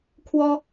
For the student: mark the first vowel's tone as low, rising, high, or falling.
high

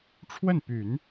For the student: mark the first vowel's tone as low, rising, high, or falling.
falling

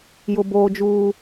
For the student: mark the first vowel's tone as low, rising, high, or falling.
high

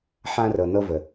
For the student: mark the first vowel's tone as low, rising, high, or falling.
high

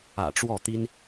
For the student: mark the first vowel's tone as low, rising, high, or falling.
low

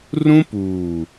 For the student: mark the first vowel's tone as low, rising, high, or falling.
high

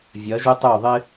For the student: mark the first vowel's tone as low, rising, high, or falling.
rising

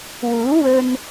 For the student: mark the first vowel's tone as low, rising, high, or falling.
rising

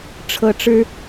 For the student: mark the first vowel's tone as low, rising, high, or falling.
high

